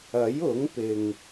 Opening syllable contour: rising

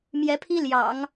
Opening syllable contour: rising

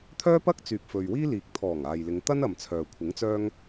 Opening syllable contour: high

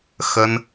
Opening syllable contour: high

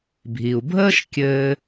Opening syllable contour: low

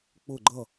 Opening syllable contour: falling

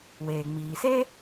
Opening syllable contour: low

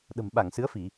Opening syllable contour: low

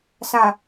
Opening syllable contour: low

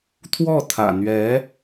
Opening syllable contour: falling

